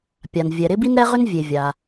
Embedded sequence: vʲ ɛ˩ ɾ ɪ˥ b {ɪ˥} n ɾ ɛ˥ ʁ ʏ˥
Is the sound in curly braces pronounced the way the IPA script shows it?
no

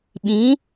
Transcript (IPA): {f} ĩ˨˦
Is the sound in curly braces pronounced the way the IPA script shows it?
no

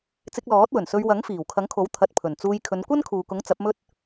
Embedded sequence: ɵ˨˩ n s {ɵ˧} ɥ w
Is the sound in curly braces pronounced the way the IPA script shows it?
yes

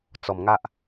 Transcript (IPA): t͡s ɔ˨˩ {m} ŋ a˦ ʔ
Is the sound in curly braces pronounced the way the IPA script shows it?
yes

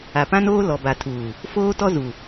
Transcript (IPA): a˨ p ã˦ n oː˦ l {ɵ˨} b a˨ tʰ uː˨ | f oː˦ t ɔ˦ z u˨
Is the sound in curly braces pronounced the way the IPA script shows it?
no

